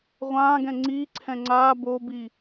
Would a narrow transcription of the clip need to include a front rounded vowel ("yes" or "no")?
no